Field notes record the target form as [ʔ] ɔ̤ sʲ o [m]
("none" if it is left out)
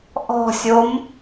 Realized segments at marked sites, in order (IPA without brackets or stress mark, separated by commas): ʔ, m